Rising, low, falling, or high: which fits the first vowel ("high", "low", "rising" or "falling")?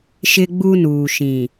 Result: high